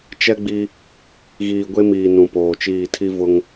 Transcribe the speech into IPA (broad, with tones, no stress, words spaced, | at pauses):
t͡ʃɛ˦ɡ͡bi˦ | ɣiː˨ɡʷe˦miː˨ nũ˨poː˨t͡ʃiː˦˨ tʰi˦ vʊ˦ŋ